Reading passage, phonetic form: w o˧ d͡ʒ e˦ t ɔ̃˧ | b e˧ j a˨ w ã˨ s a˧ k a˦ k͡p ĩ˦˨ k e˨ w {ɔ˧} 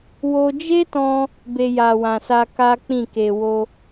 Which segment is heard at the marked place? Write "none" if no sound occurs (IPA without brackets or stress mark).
o˧